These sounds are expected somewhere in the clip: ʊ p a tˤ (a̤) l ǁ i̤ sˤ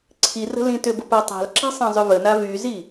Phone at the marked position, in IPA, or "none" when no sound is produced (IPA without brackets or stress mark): a̤